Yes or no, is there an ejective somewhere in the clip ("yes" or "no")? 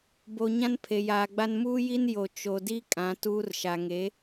yes